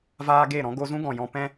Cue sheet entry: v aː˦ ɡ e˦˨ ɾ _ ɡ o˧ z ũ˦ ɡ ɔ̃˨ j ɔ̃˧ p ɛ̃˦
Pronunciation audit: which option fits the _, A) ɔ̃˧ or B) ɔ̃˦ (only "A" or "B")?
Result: B